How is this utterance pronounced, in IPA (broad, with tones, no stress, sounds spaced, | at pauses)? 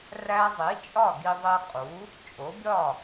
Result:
r æ˧ zˤ i˩˥ t͡ʃʼ ɒ˥˩ ɡ i˧ ðˤ e˧ qʼ u˩˥ | t͡ʃʼ o˩˥ bʲ ɒ˥˩